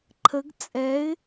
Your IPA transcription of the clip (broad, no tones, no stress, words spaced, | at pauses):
ǃʰəɡ t͡sʼɛɪ̯